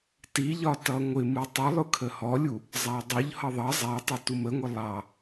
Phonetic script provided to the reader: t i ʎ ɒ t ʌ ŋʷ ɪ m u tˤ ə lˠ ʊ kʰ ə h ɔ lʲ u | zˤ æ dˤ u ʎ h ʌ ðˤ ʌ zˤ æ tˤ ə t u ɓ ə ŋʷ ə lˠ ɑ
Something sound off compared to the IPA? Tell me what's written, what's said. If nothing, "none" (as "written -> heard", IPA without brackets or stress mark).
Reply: ɓ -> m